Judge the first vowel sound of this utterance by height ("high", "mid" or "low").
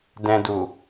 mid